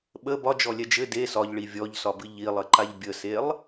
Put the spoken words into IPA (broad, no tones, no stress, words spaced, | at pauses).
ɓə bɒd͡ʒɔlʲɛ d͡ʒɘ de sɒʎɭi vʲɔʎsɒbɨ ʎilˠɘǃaʎ bʲəselˠ